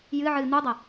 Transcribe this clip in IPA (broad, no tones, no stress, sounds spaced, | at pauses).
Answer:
j ɨ ʕ ɨ n̪ u dˤ ɐ